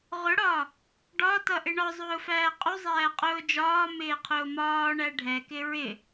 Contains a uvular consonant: yes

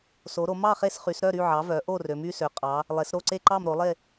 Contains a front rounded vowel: yes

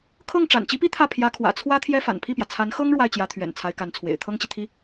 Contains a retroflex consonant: yes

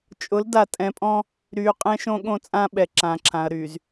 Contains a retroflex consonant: no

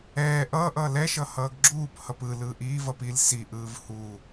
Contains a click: yes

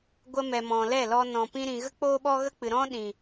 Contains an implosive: yes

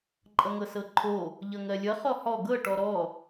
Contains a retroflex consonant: yes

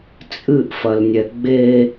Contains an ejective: yes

